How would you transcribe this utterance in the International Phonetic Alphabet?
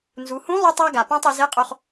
n z u˩˧ h ũ˧˥ lˠ u˧ tˤ a˧ ɡ a˩ p ã˧ tˤ i˩˧ z e˧˥ qʼ o˧ χ

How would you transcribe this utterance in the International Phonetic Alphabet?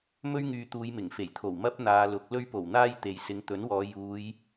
m ɵ˥ ɥ ŋ yː˧ t̪ uː˨˧ j m ɪ˨˩ ŋ f e˨˩ j t̪ʰ o˨˩ w m ɐ˥ p̚ n̪ aː˨˧ l ʊ˨˥ k̚ l ɵ˧ ɥ p o˨˩ w n̪ aː˧ j t̪ e˨ j s ɪ˨˧ ŋ t̪ ɵ˨˥ n w ɔː˨˧ j uː˨˧ j

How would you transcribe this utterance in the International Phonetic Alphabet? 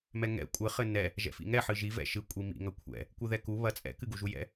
m ɛ ŋ ɛ̰ kʷʼ ɘ χ ɘ n ɛ | ʒ ɛ̰ f ḭ ŋ ɛ ħ ɨ ʒ i v ɛ̰ ʃ ɨ kʷʼ i m ḭ ŋ ɐ kʷʰ ɛ̰ | kʷ ɨ ð ɛ k u β ɐ t͡sʼ ɛ̰ k ɨ ɡ u ʒ u j ɛ̰

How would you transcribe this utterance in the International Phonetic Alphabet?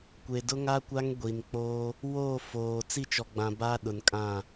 kʷ e˨ d ʊ˦ ŋ a˦ kʷ a˦ ŋ ɡʷ i˨ n k͡p oː˦ | w oː˦˨ f oː˨ t͡s i˦˨ t͡ʃ ɔ˨ ɡ͡b ã˨ b a˦ ɗ ʊ˨ n kʼ ã˦˨

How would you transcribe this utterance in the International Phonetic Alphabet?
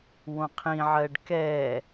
w õ qʰ ĩ ʕ ɜ ɖ k ɛ

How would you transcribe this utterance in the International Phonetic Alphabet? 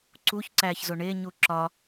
ǀ u ç ǀ æ ç z o ɳ e ɲ u ǁ ɒ

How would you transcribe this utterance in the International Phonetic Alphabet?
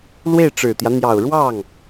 l w e˥˩ ɪ̯ ʈ͡ʂ ɻ̩˨˩ t̪ j ä˦ n̪ j ɑ˨˩ ʊ̯ ɻ w ɑ˥˩ ŋ

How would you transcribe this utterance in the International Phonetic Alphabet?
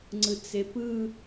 ŋ͡ǀ ɯ t͡s e p ɯ

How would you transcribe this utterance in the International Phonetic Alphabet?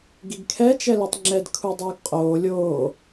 ɡ i ɡ kʰ ɛ t͡ʃ ɛ l i tˤ ŋ͡ǁ ɛ d kʰ u dˤ uː ɡ qʼ oː lʲ oː

